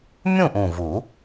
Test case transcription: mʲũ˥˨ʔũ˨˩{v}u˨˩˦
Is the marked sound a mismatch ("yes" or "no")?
no